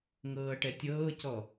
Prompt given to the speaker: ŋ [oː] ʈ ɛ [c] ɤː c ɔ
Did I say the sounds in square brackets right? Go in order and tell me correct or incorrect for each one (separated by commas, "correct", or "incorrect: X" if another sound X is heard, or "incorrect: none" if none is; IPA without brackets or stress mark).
incorrect: ɤː, incorrect: tʲ